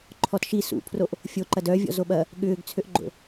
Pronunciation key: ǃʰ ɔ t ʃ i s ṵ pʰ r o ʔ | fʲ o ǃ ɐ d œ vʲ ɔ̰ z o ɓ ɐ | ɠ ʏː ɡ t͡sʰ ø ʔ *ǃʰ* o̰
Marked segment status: incorrect: ɡ͡ǃ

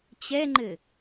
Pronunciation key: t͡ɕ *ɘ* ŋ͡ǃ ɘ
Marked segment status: incorrect: ɛ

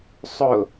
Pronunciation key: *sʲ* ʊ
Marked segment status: incorrect: sˤ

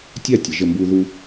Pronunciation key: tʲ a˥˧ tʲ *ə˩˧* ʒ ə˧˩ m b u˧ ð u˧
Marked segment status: correct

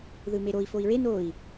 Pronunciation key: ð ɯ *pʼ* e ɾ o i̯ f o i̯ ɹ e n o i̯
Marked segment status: incorrect: m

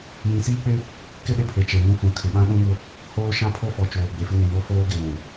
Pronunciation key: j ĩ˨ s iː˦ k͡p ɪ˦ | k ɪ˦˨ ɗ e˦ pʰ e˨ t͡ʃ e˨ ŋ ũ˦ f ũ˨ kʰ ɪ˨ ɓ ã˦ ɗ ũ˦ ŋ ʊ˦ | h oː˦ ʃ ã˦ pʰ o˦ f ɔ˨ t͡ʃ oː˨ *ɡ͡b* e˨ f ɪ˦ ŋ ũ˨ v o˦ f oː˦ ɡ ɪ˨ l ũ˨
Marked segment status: correct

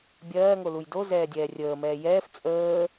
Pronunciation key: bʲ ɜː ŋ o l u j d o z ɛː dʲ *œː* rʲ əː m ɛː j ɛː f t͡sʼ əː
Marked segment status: incorrect: ɛː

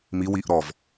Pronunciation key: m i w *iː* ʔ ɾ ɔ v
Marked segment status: incorrect: i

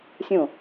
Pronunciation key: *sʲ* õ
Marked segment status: correct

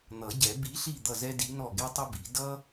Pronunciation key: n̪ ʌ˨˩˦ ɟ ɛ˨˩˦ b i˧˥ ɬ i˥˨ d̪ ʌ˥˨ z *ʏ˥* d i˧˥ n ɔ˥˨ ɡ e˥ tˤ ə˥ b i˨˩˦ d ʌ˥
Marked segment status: incorrect: ɛ˥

